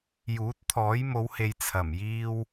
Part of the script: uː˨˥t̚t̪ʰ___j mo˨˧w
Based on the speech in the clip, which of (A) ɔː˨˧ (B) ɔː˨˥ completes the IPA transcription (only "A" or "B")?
B